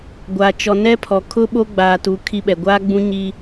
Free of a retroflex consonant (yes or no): yes